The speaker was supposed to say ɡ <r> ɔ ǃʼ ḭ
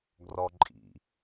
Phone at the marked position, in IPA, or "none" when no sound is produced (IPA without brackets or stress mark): r